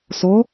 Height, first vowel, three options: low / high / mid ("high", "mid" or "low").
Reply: mid